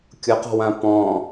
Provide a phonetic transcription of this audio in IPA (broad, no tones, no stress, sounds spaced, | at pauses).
kʲ ʊ q ɔ̤ w ã p ɔ̃